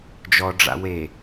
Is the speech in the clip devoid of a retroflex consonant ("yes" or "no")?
no